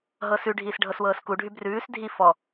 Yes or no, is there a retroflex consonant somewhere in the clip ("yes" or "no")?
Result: yes